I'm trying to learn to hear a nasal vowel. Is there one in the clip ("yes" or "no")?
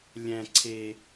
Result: yes